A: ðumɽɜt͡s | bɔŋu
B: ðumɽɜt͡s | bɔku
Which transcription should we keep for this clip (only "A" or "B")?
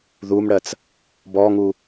A